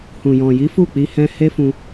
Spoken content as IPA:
h ũ˨ j ɔ̃˨ j i˨˦ f u˦˨ k͡p i˧ h ɛ̃˧ h e˦ f ũ˧

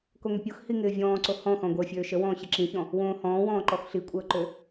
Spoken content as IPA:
k o ŋ ʏ pʲ o x h i ŋ ɪː vʲ ɔ̃ː ǀ o h ɔ̃ x ɔ̃ ɡʷ əː fʲ øː ʃ ə w ɔ̃ː ɕ ɪ ǁ ĩ ç ɔ̃ | w õː h ɔ̃ː w ɔ̃ː ǃ ɔ x ɬ i kʷʼ əː ǃ ø

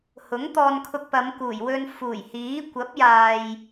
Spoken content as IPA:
h ʊ˨˥ ŋ t̪ ɔː˧ n kʰ ʊ˧ k̚ p ɐ˨˧ m k uː˨˩ j w ɵ˧ n f uː˨˩ j h iː˨˥ kʷ ɐ˨˥ p̚ j aː˨ j

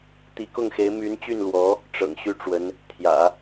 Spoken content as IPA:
t̪ i˧˥ k ʊ˥˩ ŋ x e˧˥ ɪ̯ m y˧˥ n t͡ɕ y˥˩ n l w ɔ˧˥ | ʈ͡ʂ ɤ̰˨˩ ŋ ɕ y˥ ʈ͡ʂ w ə˧˥ n | t̪ʰ j ä̰˨˩˦

